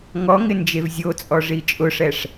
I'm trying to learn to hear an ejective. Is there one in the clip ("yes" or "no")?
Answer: yes